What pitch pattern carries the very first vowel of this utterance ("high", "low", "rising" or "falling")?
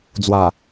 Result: low